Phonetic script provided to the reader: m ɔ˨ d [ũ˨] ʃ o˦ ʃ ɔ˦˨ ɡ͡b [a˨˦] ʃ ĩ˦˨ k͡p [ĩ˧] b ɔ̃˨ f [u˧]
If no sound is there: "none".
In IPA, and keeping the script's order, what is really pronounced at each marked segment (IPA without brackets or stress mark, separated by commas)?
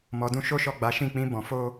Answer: ũ˧, a˨˦, ĩ˧, o˧